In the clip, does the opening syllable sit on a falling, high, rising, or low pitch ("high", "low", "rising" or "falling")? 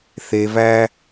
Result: low